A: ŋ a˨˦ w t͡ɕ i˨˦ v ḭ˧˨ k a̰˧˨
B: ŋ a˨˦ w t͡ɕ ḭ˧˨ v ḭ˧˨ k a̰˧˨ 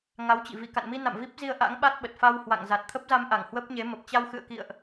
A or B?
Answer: B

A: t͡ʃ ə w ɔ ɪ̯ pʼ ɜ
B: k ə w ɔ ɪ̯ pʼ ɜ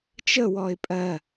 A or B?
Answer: A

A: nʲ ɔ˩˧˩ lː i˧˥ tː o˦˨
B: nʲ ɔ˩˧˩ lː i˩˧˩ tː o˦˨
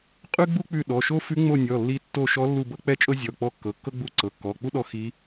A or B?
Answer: A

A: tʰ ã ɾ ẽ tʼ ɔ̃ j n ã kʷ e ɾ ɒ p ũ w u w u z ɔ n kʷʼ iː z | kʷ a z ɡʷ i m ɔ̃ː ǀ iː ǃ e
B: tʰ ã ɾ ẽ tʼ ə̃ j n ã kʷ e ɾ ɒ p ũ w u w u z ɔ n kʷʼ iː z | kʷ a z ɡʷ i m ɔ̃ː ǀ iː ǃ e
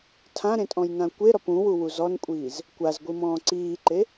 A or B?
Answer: A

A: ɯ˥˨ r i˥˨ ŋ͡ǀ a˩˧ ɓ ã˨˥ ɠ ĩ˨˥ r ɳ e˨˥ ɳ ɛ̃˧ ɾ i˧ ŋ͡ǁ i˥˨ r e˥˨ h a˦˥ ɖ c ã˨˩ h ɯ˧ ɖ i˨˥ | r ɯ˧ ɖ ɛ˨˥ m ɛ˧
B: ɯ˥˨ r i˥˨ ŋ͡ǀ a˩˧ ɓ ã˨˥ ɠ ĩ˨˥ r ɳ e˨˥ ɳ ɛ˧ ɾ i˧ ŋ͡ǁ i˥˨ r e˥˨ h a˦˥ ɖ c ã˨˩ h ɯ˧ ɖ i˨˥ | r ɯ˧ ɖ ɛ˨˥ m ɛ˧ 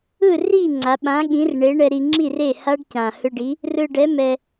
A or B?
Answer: B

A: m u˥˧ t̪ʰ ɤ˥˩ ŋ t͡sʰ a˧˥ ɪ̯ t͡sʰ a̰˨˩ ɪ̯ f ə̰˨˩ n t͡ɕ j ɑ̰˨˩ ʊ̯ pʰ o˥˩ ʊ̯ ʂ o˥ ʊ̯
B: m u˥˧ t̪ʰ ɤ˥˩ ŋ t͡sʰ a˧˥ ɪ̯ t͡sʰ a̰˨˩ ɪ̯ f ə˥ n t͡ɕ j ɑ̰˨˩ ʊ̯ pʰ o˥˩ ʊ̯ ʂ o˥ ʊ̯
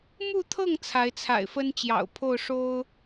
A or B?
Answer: B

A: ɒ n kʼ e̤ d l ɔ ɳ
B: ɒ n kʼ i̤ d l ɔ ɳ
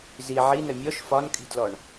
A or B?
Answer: B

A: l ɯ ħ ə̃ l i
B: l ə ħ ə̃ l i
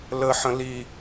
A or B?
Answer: B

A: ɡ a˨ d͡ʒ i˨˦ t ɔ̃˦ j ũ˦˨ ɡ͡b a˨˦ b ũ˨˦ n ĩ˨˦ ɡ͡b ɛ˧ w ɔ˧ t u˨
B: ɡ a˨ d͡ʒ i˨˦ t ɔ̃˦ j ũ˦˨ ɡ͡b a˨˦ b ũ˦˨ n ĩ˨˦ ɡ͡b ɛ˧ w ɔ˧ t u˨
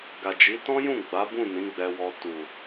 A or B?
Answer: B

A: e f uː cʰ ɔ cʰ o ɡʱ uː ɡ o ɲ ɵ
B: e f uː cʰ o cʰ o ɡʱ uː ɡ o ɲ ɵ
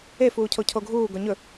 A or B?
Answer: B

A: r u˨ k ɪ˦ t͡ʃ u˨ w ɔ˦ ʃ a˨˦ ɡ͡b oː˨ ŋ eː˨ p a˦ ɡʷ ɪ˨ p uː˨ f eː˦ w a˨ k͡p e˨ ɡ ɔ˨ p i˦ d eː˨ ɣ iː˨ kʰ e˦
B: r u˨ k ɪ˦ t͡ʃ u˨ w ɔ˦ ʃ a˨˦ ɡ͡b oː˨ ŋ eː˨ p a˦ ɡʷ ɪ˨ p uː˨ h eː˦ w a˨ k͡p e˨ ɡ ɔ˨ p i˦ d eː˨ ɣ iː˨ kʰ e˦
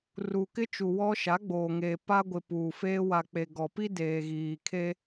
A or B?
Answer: A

